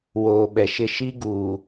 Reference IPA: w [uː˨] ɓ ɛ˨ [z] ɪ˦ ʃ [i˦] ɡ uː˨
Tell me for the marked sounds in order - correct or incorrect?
incorrect: oː˨, incorrect: ʃ, correct

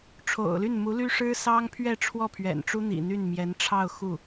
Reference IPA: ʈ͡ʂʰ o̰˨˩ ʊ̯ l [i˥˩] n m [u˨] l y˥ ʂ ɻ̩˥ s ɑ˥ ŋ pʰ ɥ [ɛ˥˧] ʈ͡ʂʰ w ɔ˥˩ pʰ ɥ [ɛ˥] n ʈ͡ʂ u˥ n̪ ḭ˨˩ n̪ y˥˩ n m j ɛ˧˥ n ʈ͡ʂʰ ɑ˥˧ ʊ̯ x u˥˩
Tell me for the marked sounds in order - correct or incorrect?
incorrect: y˥˩, incorrect: u˧˥, correct, incorrect: ɛ̰˨˩

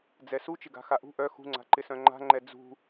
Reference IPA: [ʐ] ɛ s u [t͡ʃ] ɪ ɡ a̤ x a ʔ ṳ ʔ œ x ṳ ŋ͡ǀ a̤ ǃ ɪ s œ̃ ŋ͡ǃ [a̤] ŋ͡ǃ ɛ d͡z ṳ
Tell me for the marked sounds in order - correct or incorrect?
incorrect: d͡z, correct, correct

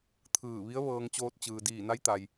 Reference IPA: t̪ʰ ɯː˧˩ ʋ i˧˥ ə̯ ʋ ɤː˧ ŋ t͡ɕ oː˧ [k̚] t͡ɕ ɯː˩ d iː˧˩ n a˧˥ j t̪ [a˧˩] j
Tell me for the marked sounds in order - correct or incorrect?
incorrect: t̚, incorrect: a˩

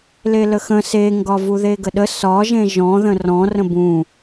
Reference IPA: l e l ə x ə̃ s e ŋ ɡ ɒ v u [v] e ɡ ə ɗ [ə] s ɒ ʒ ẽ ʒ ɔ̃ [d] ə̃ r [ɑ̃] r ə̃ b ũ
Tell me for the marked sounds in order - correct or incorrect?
incorrect: ð, correct, incorrect: ð, incorrect: ɔ̃

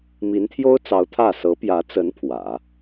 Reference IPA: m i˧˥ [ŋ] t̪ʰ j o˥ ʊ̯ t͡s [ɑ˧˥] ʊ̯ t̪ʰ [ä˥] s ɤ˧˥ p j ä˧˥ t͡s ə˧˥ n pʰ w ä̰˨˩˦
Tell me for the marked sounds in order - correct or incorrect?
incorrect: n, correct, incorrect: ä˥˩

